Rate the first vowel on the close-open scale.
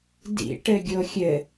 close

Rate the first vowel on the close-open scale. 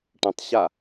mid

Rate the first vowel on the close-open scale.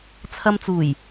open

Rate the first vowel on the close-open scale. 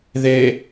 mid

